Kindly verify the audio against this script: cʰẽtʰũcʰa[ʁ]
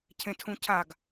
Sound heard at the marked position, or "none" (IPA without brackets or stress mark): ɡ